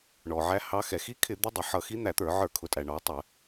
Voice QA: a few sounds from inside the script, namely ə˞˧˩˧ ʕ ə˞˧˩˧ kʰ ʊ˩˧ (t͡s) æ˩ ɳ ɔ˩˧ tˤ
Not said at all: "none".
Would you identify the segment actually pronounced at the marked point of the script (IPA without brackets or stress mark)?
tʼ